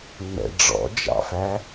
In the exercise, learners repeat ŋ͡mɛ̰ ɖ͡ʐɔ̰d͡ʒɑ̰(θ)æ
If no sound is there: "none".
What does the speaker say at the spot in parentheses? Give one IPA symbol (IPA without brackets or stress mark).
f